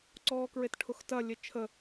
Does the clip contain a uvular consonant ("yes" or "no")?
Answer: no